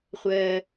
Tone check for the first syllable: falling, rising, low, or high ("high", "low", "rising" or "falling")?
high